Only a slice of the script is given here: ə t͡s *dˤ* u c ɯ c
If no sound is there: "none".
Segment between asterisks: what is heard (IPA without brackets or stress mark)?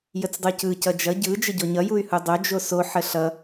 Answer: dˤ